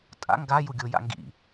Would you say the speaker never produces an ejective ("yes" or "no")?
no